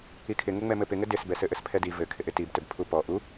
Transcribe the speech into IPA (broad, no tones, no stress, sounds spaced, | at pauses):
i kʰ ɪ ŋ ɘ ŋ͡m ɛ m ɘ p ɪ ŋ ɘ d ɪ s b ɛ s ɘ ʔ ɘ s pʰ ɛ d i v ɘ kʰ ɪ ʔ ɪ t i b t ɘ b pʰ u p ɔ ʔ u